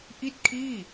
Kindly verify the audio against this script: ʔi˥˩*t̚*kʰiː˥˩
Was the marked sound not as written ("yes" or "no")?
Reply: no